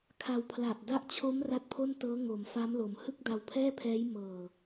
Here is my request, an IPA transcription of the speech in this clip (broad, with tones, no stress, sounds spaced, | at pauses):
kʰ a˧ w pʰ l a˨˩ ʔ d a˦˥ ʔ t͡ɕʰ o˦˥ m r a˦˥ t̚ pʰ o˥˩ n t ɤː˦˥ ŋ o˩˦ m f a˦˥ m l o˩˦ m h ɯ˥˩ k̚ d a˧ w pʰ ɛː˥˩ pʰ ɛː˦˥ j m ɤː˨˩